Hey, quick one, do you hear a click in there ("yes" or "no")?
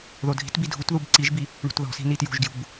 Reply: yes